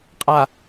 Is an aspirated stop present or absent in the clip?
absent